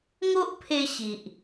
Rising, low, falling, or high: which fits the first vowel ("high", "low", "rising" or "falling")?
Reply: high